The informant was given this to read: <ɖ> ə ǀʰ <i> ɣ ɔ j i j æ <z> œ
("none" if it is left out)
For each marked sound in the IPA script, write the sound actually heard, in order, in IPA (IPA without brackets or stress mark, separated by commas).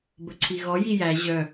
b, i, ʑ